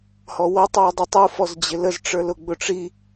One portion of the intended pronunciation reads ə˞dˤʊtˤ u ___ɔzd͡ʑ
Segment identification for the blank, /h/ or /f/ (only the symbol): f